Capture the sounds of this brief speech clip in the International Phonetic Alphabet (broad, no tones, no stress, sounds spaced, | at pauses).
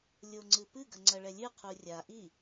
lʲ o ŋ͡ǀ ɨ p ɨ ɡ ɐ ŋ͡ǀ ɐ ɭ ɛ lʲ ɨ qʰ u rʲ a ʔ i